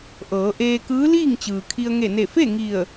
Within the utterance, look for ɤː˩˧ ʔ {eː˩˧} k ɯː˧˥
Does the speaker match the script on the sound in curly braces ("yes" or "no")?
no